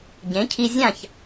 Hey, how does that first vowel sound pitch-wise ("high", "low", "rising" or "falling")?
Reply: rising